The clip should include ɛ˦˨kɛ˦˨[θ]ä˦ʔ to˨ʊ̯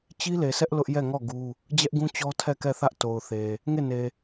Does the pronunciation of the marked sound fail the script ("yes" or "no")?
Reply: no